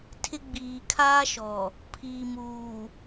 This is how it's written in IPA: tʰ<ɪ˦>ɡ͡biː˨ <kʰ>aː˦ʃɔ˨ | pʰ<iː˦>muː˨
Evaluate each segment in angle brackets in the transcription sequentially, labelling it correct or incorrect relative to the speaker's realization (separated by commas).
correct, correct, incorrect